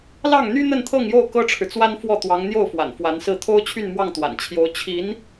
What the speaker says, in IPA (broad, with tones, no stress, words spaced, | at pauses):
lɑ˥˩ŋn̪y˥ n̪ə˥˧nt̪ʰɤ˥˧ŋjo˥˩ʊ̯ kɤ˥ʈ͡ʂʰɻ̩˨t͡swa˥nfwɔ˥˩ t̪wɑ˧˥ŋn̪jo˥˩ʊ̯ fwa̰˨˩nfwa˧˥nsɹ̩˥˩ t̪ʰo˥ʊ̯t͡ɕʰy˥˧nmwɑ˥˩ŋ t̪wa̰˨˩nt͡ɕʰjo˧˥ʊ̯ t͡ɕʰi˧˥n